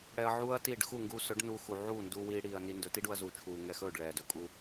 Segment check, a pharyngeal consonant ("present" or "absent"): present